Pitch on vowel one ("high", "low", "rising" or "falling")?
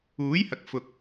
rising